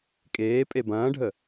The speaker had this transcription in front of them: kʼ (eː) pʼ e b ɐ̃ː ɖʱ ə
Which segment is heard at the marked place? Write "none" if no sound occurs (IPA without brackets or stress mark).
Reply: eː